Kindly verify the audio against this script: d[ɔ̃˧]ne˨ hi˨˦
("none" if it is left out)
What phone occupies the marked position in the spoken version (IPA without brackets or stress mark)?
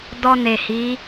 ɔ˧